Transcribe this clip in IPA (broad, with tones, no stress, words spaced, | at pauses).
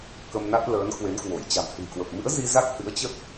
kə˧mna˦˥t̚ ləː˨˦nkwe˨˦nkwo˧˩j t͡ɕa̤˨˩mhɨ̤˨˩jkwə˨˩p̚ mɨ̰˧˥ə̯zi˧ za˦˥k̚hɨ̰˧˥ə̯t͡ɕə˦˥t̚